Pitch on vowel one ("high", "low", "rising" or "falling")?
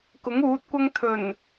rising